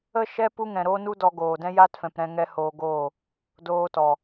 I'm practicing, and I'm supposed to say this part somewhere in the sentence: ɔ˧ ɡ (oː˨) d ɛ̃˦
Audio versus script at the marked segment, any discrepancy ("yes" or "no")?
no